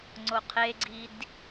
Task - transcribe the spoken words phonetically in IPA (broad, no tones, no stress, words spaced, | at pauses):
ŋ͡ǀoqʰeɡ͡ǀid